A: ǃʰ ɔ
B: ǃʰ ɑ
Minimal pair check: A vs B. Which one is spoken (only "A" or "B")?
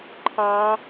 B